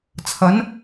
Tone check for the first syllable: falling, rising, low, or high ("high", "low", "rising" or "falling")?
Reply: rising